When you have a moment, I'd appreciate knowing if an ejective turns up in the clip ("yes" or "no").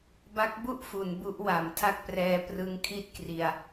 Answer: no